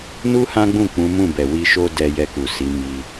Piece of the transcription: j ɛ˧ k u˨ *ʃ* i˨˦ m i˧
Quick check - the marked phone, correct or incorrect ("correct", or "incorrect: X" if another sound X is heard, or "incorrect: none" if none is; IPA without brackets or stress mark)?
incorrect: s